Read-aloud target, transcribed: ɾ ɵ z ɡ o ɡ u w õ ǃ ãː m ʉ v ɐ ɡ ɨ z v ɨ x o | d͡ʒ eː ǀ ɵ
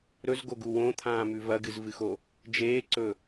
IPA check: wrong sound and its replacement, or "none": ǃ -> t̪ʰ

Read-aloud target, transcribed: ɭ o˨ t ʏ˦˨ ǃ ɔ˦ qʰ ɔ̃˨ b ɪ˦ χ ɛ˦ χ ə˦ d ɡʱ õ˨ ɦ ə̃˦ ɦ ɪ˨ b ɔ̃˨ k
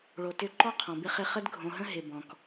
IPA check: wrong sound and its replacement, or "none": ɛ˦ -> ɪ˦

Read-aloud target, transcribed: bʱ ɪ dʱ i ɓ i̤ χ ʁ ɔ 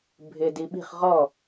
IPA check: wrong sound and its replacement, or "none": dʱ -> d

